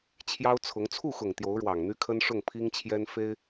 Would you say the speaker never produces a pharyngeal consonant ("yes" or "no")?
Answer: yes